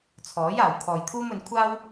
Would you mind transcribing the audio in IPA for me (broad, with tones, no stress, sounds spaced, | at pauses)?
t͡sʰ ɔː˨˥ j aː˨ w kʰ ɔː˨ j t̪ʰ uː˥ m ɵ˨˧ n kʷʰ aː˥ w